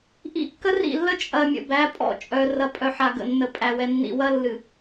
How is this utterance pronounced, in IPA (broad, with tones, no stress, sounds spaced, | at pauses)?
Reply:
ʔ ḭ˦ kː ə˦ r ḭ˦˨ lː ə˦ t͡ʃʼ ɐ˨ mʲ ə̰˨ b æ˨˦ pʼ ɔ̰˦˨ t͡ʃʼ œ˨ r ɐ˨ pʼ œ˨ ħ a˨ ɡ ə̰˨ nː ə˨ pʼ æ˨ w ɛ˨ nː ḭ˨ w ɐ˦ lː ɨ˨